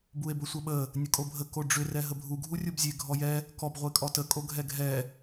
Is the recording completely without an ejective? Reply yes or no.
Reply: no